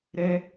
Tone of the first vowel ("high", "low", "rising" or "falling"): high